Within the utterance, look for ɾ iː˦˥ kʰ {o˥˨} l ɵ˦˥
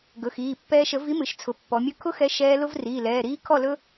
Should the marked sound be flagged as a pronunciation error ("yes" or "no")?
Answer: yes